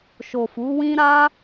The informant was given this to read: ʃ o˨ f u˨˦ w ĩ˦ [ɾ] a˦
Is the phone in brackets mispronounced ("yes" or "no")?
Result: no